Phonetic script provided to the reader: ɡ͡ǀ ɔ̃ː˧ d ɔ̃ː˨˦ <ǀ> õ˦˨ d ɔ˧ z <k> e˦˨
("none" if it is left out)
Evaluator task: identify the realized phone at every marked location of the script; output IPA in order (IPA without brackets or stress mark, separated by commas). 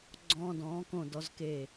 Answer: k, k